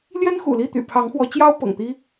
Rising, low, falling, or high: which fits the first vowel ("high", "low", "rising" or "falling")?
high